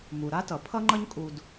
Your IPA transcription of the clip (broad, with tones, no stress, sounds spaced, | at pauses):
m u˩ ɾ a˥ t ʌ˩ pʰ ʌ˥ ŋ͡ǃ ʌ˥ ɲ kʼ u˧ d